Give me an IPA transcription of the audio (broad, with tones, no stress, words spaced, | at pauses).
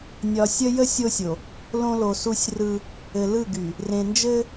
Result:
nʲɒ˨sʲə˦jə˦ sʲo˦sʲo˨ | lõ˦lo˨su˦sʲrɯ˦ | ɘ˨lɯ˦˨ɡy˨ | rẽ˨nd͡ʒɘ˦